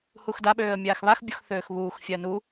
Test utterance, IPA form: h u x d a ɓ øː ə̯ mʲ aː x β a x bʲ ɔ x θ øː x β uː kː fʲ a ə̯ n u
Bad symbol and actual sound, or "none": kː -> x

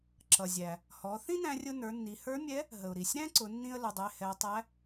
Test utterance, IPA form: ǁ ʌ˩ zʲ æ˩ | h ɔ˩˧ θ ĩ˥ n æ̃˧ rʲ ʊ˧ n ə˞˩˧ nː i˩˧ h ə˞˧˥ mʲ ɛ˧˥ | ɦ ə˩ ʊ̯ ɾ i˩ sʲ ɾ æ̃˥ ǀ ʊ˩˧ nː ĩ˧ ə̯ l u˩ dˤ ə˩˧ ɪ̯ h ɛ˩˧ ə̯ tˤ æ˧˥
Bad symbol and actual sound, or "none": none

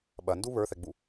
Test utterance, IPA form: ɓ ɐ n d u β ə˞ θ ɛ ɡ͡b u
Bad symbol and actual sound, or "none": none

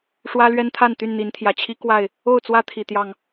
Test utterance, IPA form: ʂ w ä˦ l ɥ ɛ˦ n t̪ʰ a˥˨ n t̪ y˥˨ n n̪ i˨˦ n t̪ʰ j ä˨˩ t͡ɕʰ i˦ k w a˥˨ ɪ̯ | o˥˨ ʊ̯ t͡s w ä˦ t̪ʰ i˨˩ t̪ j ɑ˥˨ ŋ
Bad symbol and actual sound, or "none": none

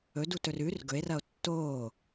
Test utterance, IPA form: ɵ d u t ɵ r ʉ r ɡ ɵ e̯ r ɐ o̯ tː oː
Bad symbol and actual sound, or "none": none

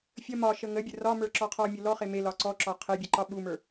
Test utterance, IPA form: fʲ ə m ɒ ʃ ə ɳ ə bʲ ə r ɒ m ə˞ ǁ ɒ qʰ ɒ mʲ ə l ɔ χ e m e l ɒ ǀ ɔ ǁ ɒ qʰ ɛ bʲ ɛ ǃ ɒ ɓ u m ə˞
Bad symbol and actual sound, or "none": ɳ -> ŋ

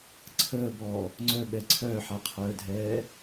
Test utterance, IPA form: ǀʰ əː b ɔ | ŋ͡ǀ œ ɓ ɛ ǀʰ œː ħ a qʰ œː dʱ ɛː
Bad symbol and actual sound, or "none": none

